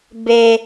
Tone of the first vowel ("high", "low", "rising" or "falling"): high